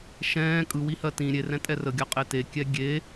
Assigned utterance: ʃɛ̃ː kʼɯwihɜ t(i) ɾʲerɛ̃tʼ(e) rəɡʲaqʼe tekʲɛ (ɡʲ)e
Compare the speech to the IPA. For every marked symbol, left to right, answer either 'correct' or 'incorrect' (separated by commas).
incorrect, incorrect, correct